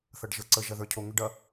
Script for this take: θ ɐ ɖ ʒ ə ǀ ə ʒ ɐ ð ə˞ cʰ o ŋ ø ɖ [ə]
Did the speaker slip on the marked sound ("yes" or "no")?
yes